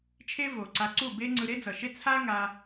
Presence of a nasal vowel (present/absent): absent